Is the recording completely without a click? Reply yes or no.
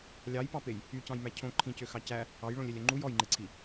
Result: no